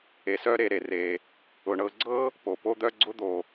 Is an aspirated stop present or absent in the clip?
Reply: absent